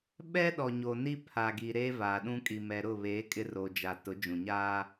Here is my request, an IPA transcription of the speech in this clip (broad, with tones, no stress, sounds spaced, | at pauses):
ɓ ɛ˦ ɗ ɔ˨ ɲ o˨ n i˦ pʰ a˨ ɡ i˨ ɾ eː˦ v aː˨ ɗ ũ˦ kʼ i˨ m ɛ˨ ɾ ʊ˦˨ β eː˨˦ kʼ ɪ˦ r o˨ d͡ʒ a˨ t ʊ˨˦ d͡ʒ ũ˨ ɲ aː˦